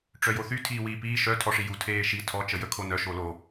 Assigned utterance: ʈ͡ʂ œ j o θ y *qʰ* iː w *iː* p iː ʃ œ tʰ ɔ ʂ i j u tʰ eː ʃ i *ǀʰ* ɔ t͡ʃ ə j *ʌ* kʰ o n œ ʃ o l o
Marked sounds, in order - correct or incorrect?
incorrect: tʰ, correct, incorrect: tʰ, incorrect: ə

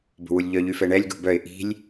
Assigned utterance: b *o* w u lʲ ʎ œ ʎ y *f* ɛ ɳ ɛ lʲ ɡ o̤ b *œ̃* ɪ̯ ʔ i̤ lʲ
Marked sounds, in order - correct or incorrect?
incorrect: o̤, correct, incorrect: œ

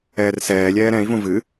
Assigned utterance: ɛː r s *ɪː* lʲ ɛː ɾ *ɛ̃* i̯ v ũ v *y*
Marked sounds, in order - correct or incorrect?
incorrect: ɛː, correct, incorrect: ɨ

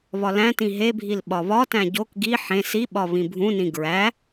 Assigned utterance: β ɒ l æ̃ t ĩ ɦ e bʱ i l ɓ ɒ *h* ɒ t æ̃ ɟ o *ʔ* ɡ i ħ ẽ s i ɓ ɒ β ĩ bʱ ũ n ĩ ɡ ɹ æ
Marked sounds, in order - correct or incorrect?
incorrect: β, incorrect: k

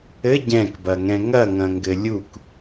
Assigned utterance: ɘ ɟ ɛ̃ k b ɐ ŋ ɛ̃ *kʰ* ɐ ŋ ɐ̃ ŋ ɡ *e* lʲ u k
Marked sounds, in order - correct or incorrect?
incorrect: ŋ, incorrect: ɘ

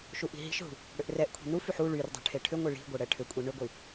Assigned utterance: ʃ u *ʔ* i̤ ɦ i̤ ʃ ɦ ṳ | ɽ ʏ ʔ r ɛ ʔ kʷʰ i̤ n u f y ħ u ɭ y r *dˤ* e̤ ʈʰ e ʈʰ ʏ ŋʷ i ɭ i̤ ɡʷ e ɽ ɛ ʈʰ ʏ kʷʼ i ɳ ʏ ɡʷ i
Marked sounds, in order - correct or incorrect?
correct, correct

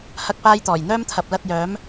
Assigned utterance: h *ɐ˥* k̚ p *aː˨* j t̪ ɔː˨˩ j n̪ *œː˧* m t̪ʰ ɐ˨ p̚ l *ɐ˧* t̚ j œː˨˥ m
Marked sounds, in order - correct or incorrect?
correct, incorrect: aː˥, incorrect: œː˥, correct

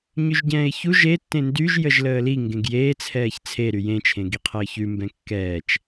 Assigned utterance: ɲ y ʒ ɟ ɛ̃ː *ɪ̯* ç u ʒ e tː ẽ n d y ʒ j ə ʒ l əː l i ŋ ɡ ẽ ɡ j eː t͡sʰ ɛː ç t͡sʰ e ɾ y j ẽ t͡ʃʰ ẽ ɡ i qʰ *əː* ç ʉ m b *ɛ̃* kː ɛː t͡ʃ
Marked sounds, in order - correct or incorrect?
correct, correct, correct

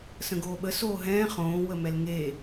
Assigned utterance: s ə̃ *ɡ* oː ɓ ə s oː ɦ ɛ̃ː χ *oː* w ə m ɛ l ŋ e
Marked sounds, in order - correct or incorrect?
correct, incorrect: õː

